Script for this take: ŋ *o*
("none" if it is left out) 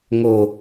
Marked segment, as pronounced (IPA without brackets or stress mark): o